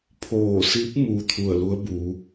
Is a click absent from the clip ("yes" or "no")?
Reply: yes